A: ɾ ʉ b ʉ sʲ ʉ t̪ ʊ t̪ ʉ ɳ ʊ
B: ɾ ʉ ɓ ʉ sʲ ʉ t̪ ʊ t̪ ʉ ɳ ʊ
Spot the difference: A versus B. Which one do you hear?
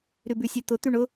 A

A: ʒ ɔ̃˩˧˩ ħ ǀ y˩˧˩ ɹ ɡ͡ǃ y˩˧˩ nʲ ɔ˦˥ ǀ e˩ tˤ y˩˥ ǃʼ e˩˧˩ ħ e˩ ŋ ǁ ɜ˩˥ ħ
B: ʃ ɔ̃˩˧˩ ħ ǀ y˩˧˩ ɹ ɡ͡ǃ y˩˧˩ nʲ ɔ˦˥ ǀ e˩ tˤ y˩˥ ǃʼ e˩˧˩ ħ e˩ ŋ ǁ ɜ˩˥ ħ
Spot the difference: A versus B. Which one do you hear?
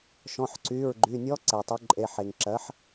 B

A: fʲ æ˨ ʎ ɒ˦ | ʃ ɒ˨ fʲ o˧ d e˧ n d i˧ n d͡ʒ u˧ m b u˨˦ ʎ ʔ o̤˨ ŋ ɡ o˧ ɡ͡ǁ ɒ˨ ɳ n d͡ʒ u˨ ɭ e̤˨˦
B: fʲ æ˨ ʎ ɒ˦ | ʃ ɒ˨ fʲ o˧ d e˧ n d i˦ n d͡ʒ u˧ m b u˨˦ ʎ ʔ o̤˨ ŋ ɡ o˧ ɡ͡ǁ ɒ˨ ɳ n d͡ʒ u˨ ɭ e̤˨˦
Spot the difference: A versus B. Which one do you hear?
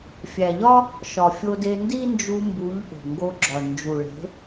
B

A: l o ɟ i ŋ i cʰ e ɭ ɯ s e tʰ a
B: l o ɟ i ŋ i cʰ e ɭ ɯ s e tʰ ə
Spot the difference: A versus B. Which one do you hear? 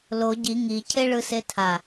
A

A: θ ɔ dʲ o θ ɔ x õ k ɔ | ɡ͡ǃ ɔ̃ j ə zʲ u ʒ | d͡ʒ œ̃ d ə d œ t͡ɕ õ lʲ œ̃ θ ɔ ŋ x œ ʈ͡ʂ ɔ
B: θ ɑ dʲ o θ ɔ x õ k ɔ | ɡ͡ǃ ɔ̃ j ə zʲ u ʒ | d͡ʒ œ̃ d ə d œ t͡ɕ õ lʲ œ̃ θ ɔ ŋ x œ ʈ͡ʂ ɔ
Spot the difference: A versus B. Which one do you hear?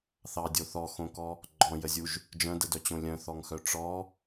B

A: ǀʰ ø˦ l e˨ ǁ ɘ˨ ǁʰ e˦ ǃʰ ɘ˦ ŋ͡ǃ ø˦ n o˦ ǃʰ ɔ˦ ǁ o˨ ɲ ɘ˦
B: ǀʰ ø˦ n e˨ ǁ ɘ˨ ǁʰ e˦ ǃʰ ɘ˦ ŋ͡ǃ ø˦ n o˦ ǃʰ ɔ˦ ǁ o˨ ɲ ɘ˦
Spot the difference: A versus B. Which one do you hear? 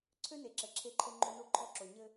B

